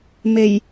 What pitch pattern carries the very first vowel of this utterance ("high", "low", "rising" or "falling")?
low